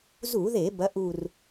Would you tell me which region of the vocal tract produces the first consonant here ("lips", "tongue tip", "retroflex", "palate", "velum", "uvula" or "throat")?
tongue tip